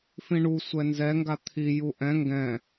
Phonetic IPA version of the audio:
f ĩ ɳ u sʷ ɛ n z ɛ ŋ ɡ a t̪ʰ i j u ʔ ɛ̃ ŋ ɡ ɛ̃

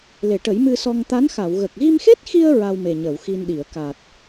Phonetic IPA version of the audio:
l e˨˩˨ ʈ ə˨˩˦ j m ɨ˧ s ɔ˧ ŋ t̪ a˧˥ n x a˨˩˨ w ɣ ə˨˩ k̚ ɣ i˧ m x e˦˥ t̚ x i˧ ə̯ ɹ a˧ w m e˨˩ ɲ əː˨˩˨ w x i˧ n ɗ i˨˩˨ ə̯ k a˨˩ t̚

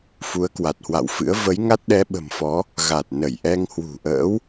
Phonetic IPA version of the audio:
f u˨˦ ə̯ k w a˨˩ t̚ h w a̰˧˨ w f ɨ̰˧˥ ə̯ v ə˨˦ j ŋ a˦˥ t̚ ɗ ɛ˨˦ ɓ ə̤˨˩ m f ɔ˨˦ | ɣ a˨˩ t̚ n ə˧˩ j ʔ ɛ˧ ŋ h w ṳ˨˩ ʔ ə̰ː˧˥ w

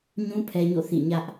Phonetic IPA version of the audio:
ɲ ũ˦ pʰ ɛ˦ ɲ o̰˦˨ θ ḭ˦˨ ɲ ä˦ ʔ

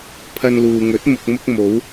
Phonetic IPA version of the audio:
pʰ ɐ˧ n l uː˨ ŋ ɵ˨˥ t̚ m ʊ˨ k̚ m ʊ˧ k̚ m o˨˧ w

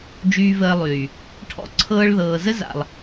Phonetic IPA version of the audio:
d͡ʒ yː˧ v əː˧ lˠ yː˨ | ʈʰ ɔ̰˧ ǀʰ ɤː˧ ɭ ð ɤː˨ z ə˦ z a̰˨ lˠ

